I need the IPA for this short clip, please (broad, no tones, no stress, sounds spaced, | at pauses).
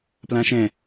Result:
p l ã ʃ ɛ̃